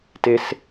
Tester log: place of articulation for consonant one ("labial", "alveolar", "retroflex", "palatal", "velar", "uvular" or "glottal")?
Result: alveolar